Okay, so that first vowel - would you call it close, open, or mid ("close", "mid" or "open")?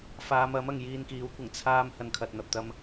open